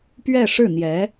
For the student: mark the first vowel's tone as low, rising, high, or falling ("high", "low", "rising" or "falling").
falling